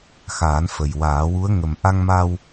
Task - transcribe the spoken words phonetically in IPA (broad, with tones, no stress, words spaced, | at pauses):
xaː˨˩˦nfə˨˩jwaː˨˩˦wu˧˥ə̯ ŋə˨˩m ʔa˧ŋma˧w